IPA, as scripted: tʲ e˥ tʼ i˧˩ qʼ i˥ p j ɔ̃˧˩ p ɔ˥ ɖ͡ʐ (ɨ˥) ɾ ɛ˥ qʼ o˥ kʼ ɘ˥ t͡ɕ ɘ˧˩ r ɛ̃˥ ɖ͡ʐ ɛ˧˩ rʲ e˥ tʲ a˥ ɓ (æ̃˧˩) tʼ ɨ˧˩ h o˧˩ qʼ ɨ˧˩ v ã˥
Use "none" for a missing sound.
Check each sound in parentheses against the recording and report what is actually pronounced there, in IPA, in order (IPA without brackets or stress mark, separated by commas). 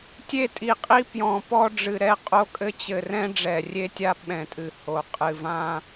ɨ˧˩, ɛ̃˧˩